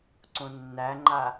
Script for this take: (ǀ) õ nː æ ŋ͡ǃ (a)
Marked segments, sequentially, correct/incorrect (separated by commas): correct, correct